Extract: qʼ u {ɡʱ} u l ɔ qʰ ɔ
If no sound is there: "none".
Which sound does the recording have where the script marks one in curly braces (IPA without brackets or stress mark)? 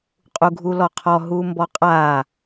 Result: ɡʱ